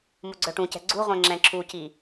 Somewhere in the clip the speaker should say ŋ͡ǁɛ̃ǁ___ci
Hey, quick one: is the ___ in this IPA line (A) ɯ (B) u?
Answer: B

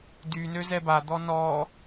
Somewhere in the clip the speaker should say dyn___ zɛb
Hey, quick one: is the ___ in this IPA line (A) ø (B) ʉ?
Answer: A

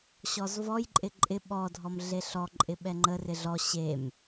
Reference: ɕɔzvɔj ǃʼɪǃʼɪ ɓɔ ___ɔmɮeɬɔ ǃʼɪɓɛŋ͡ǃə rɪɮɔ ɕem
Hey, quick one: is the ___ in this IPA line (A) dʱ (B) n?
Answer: A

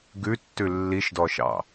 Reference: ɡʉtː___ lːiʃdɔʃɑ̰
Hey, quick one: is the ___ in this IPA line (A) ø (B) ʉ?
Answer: B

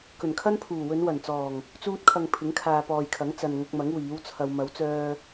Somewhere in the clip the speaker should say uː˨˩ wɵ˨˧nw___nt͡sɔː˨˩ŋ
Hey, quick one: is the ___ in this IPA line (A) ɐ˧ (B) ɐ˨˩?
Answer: B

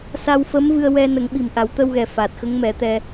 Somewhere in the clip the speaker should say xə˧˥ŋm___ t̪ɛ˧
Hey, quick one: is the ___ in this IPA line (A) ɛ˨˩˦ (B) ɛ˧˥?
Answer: A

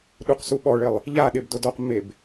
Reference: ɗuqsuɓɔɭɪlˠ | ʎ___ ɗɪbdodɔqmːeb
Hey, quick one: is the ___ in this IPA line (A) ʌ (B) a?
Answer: B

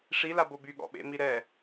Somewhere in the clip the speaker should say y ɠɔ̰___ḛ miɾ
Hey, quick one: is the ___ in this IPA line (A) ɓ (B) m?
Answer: A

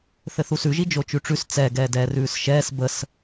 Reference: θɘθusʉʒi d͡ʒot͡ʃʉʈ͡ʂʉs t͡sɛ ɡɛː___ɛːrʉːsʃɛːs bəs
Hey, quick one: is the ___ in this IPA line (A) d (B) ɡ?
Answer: A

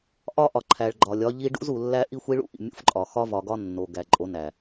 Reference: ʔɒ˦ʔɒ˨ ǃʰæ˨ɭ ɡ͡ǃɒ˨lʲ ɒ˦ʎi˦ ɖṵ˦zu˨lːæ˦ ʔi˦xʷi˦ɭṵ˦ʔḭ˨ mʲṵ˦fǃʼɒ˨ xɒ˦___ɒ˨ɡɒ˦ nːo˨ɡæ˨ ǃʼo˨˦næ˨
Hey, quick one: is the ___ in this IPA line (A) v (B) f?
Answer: A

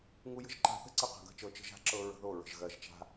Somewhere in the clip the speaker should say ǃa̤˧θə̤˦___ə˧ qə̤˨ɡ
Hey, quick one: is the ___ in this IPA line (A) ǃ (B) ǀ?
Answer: B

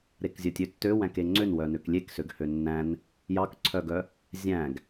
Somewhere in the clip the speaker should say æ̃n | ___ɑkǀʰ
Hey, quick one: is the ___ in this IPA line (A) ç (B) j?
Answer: B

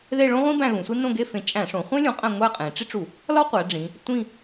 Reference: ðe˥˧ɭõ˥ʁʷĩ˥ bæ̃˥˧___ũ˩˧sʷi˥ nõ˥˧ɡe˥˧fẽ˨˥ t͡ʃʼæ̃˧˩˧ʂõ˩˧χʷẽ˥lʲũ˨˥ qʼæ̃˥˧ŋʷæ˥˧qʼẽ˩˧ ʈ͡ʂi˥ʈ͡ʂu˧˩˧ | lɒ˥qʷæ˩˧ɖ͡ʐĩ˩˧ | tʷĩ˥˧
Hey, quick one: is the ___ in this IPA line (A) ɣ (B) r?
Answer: A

